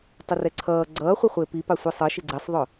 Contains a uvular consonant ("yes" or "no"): yes